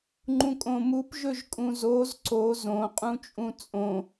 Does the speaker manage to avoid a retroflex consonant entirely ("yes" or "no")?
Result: yes